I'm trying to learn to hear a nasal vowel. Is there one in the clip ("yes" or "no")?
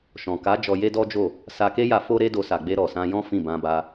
yes